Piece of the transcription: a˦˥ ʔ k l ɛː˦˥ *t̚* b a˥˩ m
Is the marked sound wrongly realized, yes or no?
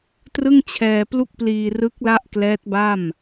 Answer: no